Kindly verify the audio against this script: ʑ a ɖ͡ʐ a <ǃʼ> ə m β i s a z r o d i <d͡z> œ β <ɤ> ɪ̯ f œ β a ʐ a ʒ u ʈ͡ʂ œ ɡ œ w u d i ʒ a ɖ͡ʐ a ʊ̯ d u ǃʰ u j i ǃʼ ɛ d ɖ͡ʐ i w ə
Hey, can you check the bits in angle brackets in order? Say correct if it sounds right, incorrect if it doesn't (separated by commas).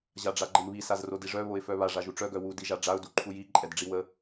incorrect, incorrect, incorrect